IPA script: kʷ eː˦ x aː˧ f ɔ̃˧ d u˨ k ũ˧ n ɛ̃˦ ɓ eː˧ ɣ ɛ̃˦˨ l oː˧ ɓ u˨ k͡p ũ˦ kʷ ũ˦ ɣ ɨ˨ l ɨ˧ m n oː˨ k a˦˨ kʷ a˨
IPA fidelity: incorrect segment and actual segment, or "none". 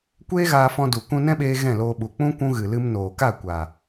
x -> ɣ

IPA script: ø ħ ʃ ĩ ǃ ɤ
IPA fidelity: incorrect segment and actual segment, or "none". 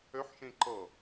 none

